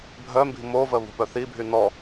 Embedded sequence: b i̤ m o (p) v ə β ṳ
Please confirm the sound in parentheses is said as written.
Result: no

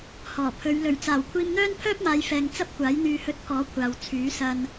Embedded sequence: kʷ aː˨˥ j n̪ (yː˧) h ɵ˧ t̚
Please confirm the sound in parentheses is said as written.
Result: yes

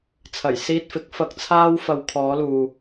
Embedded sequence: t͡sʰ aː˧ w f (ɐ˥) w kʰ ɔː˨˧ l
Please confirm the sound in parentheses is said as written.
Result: no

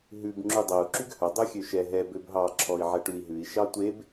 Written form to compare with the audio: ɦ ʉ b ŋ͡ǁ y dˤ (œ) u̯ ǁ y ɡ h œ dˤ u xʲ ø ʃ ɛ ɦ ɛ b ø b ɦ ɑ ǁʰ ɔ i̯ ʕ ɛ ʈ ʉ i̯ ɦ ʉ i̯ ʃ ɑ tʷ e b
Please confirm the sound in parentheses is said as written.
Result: no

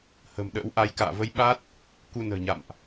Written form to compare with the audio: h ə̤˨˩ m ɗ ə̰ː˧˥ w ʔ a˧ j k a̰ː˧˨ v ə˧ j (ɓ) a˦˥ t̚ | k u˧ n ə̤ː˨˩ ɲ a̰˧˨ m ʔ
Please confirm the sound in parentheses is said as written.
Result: yes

